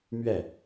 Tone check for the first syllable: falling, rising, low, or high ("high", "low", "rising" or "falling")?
falling